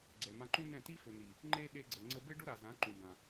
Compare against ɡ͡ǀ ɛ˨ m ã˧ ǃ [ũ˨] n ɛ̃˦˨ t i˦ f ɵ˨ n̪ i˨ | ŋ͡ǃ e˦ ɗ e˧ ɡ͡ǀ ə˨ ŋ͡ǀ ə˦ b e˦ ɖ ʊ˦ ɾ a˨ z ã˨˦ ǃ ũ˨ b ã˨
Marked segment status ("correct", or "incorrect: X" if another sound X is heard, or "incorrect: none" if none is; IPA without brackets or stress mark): incorrect: ũ˦